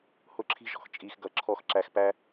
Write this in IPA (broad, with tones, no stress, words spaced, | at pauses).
hʊ˥ǁʰi̤˥ʒɔ̤˩x t͡ʃʼi˥xɡʌ˥ ǁʰɔ˥x ǁæ˥x pæ˥